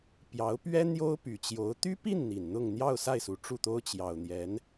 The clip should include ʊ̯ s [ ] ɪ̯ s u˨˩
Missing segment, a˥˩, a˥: a˥˩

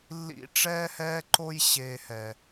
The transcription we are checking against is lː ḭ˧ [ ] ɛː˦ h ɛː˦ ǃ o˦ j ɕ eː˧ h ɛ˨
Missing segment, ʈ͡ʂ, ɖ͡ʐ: ʈ͡ʂ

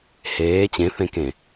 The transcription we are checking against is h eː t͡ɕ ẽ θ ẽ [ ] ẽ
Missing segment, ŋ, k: k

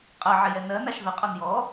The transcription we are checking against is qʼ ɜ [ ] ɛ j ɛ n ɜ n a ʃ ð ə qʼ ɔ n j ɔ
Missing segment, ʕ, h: ʕ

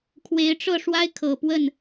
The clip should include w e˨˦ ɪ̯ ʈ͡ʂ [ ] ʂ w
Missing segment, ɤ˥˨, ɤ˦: ɤ˥˨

